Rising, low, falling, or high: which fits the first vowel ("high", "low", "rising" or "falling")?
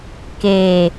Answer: low